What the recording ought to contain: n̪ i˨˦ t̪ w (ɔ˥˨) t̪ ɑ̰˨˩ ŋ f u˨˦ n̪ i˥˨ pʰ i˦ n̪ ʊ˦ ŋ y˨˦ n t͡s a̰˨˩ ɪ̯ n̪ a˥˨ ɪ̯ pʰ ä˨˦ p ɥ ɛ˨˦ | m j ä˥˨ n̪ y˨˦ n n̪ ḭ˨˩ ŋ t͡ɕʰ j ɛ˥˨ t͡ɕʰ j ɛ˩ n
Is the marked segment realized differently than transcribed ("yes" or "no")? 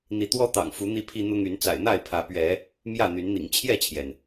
yes